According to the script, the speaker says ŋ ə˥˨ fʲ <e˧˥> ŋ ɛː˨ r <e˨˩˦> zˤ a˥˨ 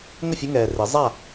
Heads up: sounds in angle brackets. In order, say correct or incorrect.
incorrect: ɘ˧˥, correct

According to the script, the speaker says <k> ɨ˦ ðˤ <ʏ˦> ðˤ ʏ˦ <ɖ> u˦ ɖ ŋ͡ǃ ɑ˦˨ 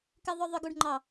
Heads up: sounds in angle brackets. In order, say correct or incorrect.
correct, correct, incorrect: ɡ

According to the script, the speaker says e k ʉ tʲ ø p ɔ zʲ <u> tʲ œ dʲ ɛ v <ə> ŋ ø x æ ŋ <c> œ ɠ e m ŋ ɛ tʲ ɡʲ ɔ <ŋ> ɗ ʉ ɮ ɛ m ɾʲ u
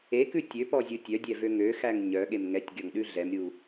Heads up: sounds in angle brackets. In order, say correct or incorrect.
correct, incorrect: ø, incorrect: ɲ, correct

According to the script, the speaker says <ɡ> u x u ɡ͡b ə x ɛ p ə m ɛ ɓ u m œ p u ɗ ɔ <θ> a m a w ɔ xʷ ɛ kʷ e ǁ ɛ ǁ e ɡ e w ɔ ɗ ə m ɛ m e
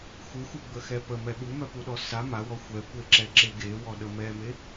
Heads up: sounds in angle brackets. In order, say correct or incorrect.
incorrect: x, incorrect: s

